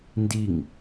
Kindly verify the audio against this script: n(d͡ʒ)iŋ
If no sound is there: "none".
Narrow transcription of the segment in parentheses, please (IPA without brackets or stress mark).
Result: d